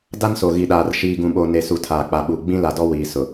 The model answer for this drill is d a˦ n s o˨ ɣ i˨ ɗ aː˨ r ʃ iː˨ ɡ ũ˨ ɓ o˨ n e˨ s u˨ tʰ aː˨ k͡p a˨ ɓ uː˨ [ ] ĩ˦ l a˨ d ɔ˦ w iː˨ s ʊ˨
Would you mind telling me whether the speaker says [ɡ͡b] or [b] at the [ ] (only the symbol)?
ɡ͡b